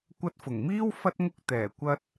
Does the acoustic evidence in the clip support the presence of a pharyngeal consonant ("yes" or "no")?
no